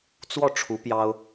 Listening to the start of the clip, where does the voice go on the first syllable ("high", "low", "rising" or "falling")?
falling